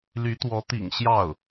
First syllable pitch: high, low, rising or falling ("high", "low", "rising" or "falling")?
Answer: rising